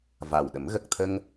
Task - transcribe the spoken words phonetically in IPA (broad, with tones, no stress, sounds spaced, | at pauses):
v a˨˩ w ɗ ə˨˩˦ m ɣ ə˨˩ k̚ t̪ʰ ə˧ ŋ